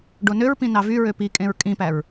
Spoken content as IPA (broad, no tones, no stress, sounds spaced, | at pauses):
ɖ o n ø ɹ p ĩ n ɑ v y ɹ ø p i kʼ ẽ ɹ kʼ ĩ p æ ɹ